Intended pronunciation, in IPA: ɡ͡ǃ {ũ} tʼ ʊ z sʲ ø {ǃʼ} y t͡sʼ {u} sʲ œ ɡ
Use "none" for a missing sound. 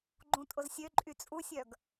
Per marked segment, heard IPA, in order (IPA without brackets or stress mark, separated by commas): ũ, ǃʼ, u